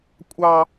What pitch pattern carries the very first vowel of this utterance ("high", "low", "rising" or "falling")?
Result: high